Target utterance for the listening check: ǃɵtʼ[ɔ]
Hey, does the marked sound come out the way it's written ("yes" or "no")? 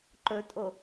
no